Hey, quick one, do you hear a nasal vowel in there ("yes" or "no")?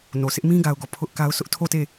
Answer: yes